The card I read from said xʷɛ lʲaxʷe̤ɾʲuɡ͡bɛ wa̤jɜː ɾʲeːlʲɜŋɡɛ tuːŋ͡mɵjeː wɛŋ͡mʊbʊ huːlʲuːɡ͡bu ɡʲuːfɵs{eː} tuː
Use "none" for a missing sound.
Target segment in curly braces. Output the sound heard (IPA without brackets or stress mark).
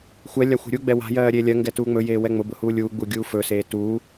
eː